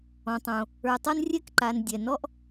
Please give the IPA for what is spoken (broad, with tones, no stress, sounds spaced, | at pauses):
ɔ̃˩ tˤ õ˩ | ə˞˩ tˤ ɤ˥ n rʲ ɛ˥ k ǃ a˩ n dʲ ɛ˩ n ɔ˥ ʔ